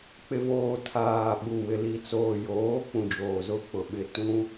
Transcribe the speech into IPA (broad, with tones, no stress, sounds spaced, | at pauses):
k͡p ɪ˨ v oː˨ tʰ aː˨ ɓ u˨ w ɪ˨ l i˨ t͡s oː˨ j oː˨˦ k͡p ũ˨ d͡ʒ oː˨ z ʊ˦ k͡p ʊ˨ ɓ ɪ˦˨ t ũ˦